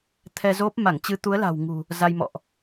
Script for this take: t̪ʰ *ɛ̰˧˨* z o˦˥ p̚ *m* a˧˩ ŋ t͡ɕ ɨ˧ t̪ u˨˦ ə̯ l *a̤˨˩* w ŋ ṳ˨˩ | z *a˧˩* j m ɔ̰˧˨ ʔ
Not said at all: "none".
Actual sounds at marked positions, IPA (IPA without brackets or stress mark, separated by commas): ɛ˧, m, a̤˨˩, a˧